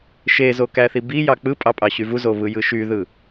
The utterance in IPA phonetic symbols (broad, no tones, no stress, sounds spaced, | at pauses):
ʃ e z o k æ θ i b i j ɑ k͡p ɯ pʼ ɑ pʼ ɑ ɕ y v u z o β ɯ j ɯ ʃ y ð ɯ